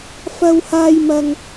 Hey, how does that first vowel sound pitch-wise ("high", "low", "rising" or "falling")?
high